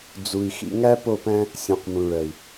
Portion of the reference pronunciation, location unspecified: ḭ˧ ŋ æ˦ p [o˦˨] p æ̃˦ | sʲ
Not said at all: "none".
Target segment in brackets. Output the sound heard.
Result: o˦˨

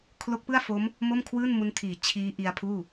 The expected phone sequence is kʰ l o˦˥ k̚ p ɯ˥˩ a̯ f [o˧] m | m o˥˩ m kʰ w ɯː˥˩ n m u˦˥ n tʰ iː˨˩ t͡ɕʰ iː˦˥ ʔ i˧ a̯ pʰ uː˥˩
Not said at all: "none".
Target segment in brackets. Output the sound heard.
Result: o˦˥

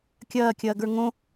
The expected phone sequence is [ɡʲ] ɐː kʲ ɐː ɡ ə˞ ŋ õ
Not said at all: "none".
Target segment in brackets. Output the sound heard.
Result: kʲ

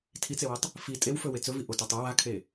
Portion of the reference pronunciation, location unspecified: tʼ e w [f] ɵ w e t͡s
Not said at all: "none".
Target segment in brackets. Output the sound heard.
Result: f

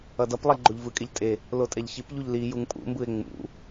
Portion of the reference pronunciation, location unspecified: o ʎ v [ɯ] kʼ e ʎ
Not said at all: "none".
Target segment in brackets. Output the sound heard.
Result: ɯ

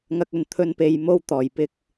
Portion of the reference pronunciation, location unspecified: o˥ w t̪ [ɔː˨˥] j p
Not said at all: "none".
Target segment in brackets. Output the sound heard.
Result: ɔː˨˩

